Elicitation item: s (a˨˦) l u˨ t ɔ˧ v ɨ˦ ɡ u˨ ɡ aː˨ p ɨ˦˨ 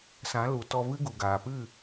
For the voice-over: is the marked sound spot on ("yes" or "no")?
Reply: no